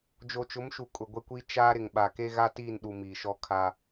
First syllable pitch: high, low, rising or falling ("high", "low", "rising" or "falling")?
low